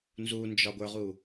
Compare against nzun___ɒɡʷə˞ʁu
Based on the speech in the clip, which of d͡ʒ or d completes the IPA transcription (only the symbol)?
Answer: d͡ʒ